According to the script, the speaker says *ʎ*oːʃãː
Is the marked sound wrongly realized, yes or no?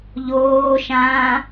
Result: no